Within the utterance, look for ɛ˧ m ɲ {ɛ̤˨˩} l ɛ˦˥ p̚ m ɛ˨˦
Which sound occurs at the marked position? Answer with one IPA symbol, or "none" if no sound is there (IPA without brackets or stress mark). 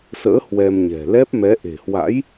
ɛ̤˨˩